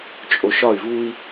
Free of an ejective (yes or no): no